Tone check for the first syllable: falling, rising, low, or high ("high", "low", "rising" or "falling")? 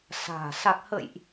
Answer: low